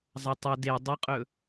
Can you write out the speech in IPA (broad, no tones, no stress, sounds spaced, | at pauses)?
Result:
zˤ ɐ tˤ ɵ d e dˤ ɨ qʼ ɵ